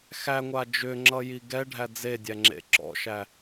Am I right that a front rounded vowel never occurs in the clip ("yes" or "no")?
no